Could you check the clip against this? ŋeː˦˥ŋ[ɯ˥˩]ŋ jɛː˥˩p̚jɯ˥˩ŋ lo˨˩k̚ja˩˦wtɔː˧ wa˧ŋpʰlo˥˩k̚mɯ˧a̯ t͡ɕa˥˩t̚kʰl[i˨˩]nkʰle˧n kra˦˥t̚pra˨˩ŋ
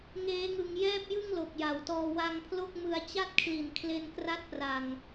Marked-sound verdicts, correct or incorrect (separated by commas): incorrect, correct